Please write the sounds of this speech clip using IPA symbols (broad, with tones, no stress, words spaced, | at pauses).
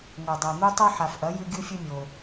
ŋo˨dˤa˨n̪u˦tˤo˦ ħa˨fʔɐ˨˥jʉ˦ ɡʲu˦fʲɵ˦mʲo˨